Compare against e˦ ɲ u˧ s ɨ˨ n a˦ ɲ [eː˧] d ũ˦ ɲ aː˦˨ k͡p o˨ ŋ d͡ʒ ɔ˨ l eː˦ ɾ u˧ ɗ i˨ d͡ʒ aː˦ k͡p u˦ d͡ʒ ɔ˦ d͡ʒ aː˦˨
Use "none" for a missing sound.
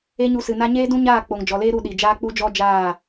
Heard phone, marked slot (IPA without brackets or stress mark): eː˦